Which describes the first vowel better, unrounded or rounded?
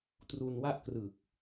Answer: rounded